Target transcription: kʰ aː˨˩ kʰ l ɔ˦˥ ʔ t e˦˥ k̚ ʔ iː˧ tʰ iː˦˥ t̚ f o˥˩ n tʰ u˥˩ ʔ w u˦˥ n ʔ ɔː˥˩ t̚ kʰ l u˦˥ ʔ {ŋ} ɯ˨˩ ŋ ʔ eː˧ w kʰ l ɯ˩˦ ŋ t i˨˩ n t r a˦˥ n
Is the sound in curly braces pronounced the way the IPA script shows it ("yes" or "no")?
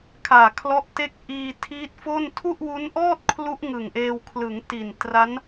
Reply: yes